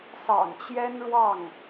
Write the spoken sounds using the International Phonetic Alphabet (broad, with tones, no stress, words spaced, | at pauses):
sɑ̰˨˩ŋt͡ɕjɛ˥nɻwɑ˥˩ŋ